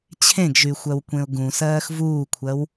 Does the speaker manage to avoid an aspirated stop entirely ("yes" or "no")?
no